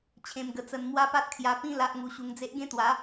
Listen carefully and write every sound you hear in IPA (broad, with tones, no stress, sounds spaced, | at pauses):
t͡ɕʰ ẽ˧ m ɡ ə˧ t͡s ə˧ n m w a˦ p a˦ t̚ kʰ j a˧ p ĩ˦ l a˦ ʔ ŋ u˧ ɕ u˧ ŋ d͡z e˦ ʔ ɡ ẽ˦ t̪ w a˨˦